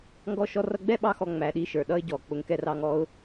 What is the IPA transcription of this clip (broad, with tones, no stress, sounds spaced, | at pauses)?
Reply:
ŋ ɡ ɔ˧ ʃ ɔ˧ r ʌ˧ ɡ͡b ɛ˦ ɓ ɑ˧ x ɔ˨ ŋ͡m æ˨ ɗ i˧ ʃ ə˞˨ ɗ ʌ˦ ɪ̯ ɟ ɔ˨ k͡p ʊ˨ ŋ k ɛ˧ r ɑ˧ ŋ ɔ˧ ʊ̯